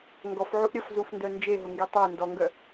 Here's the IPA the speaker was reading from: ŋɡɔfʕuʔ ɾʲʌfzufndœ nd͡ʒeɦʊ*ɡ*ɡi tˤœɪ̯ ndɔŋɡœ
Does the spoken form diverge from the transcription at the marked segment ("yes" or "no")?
yes